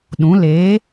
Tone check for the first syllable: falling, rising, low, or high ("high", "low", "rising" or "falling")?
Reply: rising